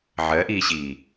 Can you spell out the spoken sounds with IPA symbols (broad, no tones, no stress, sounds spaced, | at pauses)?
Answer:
ʕ ɜ ʔ iː ɕ iː